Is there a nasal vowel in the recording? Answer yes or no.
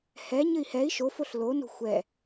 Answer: no